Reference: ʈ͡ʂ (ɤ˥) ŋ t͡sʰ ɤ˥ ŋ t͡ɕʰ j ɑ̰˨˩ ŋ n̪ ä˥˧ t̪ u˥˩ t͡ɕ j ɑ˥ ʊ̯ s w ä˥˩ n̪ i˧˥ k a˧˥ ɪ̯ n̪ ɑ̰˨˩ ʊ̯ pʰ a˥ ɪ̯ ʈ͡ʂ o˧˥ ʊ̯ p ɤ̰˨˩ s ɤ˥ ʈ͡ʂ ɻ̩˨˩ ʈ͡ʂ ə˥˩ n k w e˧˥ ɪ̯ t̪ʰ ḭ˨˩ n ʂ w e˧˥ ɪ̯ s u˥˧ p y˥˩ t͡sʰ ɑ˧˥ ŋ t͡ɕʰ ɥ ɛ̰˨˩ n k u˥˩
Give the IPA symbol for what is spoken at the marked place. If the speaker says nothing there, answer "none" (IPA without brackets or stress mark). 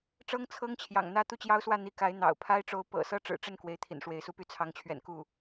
ɤ˥